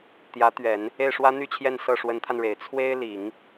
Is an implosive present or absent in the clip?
absent